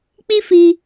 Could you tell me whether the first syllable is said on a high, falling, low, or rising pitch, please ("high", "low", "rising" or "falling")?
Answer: high